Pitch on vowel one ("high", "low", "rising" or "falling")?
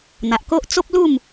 low